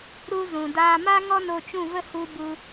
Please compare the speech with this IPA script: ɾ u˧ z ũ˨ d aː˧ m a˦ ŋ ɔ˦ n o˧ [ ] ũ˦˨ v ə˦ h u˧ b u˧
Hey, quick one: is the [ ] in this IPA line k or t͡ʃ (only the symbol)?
t͡ʃ